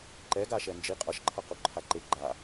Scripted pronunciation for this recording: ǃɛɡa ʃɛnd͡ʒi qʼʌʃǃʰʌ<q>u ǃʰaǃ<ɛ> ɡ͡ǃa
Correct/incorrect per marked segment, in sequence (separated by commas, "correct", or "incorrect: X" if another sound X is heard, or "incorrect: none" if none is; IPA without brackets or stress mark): correct, incorrect: e